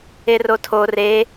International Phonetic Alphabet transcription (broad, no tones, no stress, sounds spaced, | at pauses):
e r o tʰ o r e